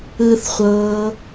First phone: ɯ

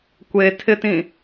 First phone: kʷ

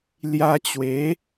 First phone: l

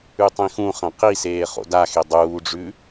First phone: ʉ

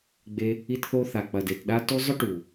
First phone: ɡ͡b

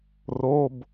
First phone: r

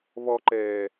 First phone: β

